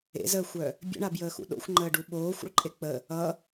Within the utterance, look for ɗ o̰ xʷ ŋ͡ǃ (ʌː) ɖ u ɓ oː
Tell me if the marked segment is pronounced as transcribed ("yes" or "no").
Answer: no